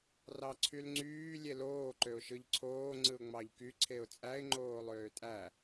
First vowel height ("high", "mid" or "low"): low